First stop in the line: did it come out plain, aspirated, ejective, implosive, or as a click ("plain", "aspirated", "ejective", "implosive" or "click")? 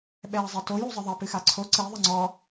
implosive